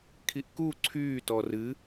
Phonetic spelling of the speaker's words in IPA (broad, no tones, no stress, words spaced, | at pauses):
kʰiʔku ǀʰyː tɔrɨ